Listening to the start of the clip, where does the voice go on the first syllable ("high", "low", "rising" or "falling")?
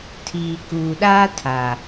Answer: low